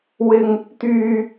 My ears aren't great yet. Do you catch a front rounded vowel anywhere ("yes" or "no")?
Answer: yes